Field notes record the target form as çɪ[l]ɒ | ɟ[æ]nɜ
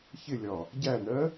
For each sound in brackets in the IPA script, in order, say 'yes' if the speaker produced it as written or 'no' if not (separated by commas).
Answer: no, yes